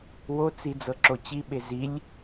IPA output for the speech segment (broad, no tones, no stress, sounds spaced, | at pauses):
w o t͡s i d͡z ɤ ǁ o t͡ɕ i ɓ e z i lʲ